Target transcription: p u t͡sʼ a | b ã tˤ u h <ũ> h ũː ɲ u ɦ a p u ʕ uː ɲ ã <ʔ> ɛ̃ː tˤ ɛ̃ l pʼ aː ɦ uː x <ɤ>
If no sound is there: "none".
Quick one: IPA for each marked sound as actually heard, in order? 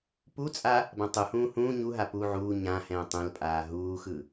ũː, h, ɯ

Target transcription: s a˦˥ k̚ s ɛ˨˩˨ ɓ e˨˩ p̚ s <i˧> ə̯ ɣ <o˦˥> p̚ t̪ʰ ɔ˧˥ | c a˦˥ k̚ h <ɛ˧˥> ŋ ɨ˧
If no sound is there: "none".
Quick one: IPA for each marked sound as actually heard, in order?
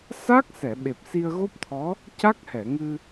i˧, o˦˥, ɛ˨˩˨

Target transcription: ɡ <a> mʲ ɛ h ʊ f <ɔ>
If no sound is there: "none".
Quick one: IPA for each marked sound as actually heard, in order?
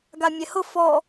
a, ɔ

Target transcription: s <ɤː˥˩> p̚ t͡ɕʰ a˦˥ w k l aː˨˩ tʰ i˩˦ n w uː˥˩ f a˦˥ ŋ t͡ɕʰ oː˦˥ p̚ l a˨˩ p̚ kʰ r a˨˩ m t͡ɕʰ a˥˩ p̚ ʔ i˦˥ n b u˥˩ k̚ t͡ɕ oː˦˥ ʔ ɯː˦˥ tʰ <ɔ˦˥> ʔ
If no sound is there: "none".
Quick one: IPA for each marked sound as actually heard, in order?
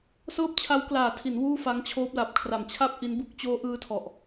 ɤː˥˩, ɔ˨˩

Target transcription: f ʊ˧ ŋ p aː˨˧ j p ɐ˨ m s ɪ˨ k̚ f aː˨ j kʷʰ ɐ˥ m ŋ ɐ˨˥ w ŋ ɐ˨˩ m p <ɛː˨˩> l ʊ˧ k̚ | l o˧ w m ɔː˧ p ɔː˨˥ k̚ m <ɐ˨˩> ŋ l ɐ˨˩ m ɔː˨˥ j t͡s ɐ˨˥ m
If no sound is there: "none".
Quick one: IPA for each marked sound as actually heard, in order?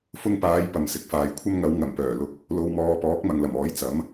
œː˨˩, ɐ˨

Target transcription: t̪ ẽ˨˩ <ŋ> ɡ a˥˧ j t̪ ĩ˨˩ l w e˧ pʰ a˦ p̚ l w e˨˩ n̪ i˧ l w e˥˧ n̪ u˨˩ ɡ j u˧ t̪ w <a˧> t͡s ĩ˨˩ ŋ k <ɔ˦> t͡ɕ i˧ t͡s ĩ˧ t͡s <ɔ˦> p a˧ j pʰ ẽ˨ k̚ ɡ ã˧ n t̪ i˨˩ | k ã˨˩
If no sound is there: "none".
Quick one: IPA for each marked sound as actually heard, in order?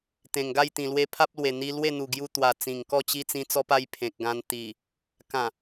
ŋ, a˨˩, ɔ˥˧, ɔ˧

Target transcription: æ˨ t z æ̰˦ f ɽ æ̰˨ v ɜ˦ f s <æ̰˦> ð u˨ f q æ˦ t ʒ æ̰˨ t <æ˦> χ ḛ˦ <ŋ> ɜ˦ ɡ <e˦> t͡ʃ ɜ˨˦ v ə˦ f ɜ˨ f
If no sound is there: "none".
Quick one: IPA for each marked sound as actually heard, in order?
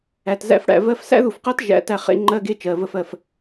æ̰˦, æ˦, ŋ͡ǃ, e˦

